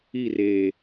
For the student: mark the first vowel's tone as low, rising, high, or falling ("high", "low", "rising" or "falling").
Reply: falling